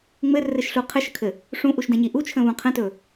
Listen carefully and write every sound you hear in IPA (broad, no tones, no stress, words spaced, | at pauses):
ŋ͡mɘrɘʃɬu qʰɘʃəkʰɘ | ʂũʔuʃdɛ̃ɲi ʔut͡ʃʰə̃βũ qʰə̃tɵ